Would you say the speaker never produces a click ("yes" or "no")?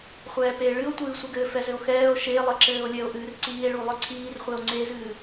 no